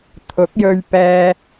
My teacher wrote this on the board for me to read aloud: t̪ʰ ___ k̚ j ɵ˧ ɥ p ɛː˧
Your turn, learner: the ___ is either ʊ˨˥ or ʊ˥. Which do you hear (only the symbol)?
ʊ˨˥